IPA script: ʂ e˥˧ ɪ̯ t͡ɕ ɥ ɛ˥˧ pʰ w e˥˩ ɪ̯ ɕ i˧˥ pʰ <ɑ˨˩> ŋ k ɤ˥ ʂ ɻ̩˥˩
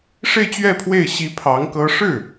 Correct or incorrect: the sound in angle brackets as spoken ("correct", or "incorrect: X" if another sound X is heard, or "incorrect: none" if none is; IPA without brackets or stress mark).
incorrect: ɑ˧˥